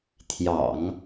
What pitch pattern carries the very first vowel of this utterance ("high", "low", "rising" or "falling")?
low